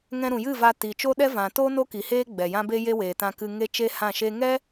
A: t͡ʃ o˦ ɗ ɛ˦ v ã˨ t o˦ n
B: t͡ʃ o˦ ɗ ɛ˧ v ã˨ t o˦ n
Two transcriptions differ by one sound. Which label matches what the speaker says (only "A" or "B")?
A